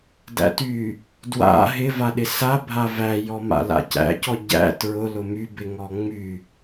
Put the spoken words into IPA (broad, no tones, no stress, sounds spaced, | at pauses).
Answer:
d æ̰ t y | d w a̰ ɦ ɪ v a ɗ ɪ s a bʱ a v æ j ɔ m a̰ l a̰ c æ̰ c ɔ ɟ æ̰ t ɹ ʊ l ʊ m y b ɪ ŋ ɔ ŋ͡m y